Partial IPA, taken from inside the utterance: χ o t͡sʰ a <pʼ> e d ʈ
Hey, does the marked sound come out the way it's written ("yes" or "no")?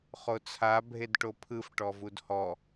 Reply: no